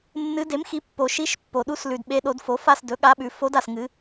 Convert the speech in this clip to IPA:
nːɨ˧˥ de˩˥mxi˩˥ pːo˨ʃi˧˥ʃpːo˨ɗu˧˥s lʉ˨dɓe˧˥ ɗo˩˥dfo˩˥fa˥˧s dɵ˩˥ɠa˧˥ɓʉ˩˥ fo˧˥da˨s ŋɨ˧˥

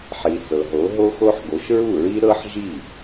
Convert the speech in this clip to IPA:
ħi˩ sɤ˩ɦo˩˥ ɦo˥xo˥ħ ɡo˩˥ʃɹu˥˩ɹi˥ ɾɤ˥ħʒi˥˩

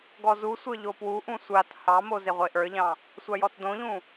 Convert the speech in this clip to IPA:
ɡɔzusʷə˞ ʎopwuʔũ sʷat hɑmo zeʁʷeʔə˞ʎɑ̃ | sʷajɔtdõʎũ

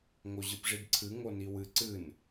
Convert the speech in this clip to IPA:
ŋoʑɨpʐidǀʰɨ ŋoniwɨ ǀɨn

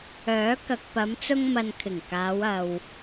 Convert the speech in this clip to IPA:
œː˨˥ kɐ˨k̚pɐ˨˧mt͡sʊ˧ŋ mɐ˨nkʰɪ˨˩ŋ kaː˨˧wɐ˨w

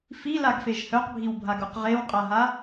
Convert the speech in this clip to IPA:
filaɡfeʒ hœqbʱiwbʱaɡuq ʁewqʼaɦa

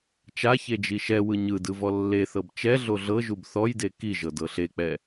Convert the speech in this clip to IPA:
t͡ʃaçe d͡ʒiʃɛwɯ ɲɯ dɯvɔlːeθɤb t͡ʃɛɮo ɮɤʒub θɔjde kiʒɤ dɤɬek͡pɛ

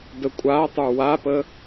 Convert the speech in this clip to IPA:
dəkʷʼatˤə˞ wapə

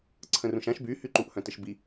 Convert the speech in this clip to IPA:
ǀʰə̃rũʃãʃ by hyǃuʔ hœ̃təʃbi

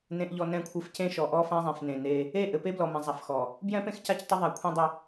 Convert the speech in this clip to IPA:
nẽ˨ʔʎɔ˨ nɛ̃˦˨kʷʰɘ˦f cẽ˦ʃɔ˨ʔɔ˦ fã˦zˤẽ˨f nẽ˨ne˦ | e˦˨ʔɘ˨ pe˦blɔ˨ mɛ̃˨zˤa˨fxɔ˨ | bjɛ̃˦pẽ˦x ca˦ctˤɘ˦ ðˤa˨kʷʰẽ˦dˤɘ˦

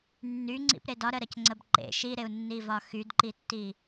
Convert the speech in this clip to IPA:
nːyŋ͡ǀḭpɾe dɒɾəɾəcŋ͡ǀəb ǃḛ ʃiɾeu̯nːivɒ xydǃitːi

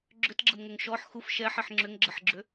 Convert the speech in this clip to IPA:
ɡ͡ǁʏtɡ͡ǁəmŋʏŋ ʃɔħ xuf ʃɛħiħ ŋ͡ǁʏŋɡ͡ǁəħɡ͡ǁʏ

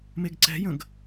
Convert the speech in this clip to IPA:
meɡǀɛ̤jə̃ɡ

